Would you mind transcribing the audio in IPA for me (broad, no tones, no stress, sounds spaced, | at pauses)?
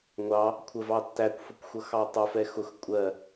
ŋʷ ɑ | kʷʰ ə v ɑ tː æ kʷ f ʊ kʷ xʷ ʌ x ɑ tˤ ʌ f ɛ x ʊ x kʷʼ ɜ